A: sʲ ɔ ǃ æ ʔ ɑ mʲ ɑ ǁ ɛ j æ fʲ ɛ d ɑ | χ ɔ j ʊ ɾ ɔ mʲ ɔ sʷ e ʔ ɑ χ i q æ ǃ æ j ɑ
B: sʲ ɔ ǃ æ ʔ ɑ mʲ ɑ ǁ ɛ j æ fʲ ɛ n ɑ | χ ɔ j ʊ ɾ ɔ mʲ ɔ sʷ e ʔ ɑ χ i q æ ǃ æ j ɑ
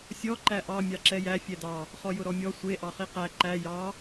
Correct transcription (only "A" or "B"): A